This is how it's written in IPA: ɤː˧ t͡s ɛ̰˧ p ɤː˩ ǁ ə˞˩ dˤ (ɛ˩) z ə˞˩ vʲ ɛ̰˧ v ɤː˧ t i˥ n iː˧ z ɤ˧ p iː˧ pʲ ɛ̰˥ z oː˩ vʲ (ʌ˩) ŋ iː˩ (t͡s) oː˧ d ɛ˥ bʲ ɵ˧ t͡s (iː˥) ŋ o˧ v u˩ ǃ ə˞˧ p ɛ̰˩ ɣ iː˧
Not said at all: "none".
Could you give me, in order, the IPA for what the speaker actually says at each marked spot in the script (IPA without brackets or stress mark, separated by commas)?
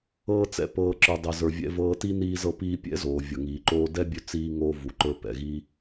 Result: ɛ˩, ʌ˩, ǃ, iː˧